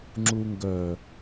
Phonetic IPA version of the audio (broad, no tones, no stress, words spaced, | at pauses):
ŋ͡ǁuŋɡœ